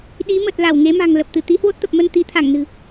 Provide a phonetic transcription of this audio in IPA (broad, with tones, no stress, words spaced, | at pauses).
ɗi˨˦mə˨˩t̚ la˧˩wŋe˨˦ma̤˨˩ŋ lə˨˩p̚t̪ɨ˧˩ t̪i˨˦hwo˦˥t̚t̪ə˨˩p̚mə˧n t̪i˨˦t̪ʰa˧˩ŋnɨ̤˨˩